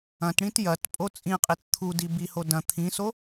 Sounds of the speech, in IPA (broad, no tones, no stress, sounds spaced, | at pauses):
ɐ̃ t ɽ ĩ t j ɐ t pʼ o t͡sʼ ĩ qʼ i t t̪ʰ u d i b i h o d ɐ̃ t̪ʰ ĩ s o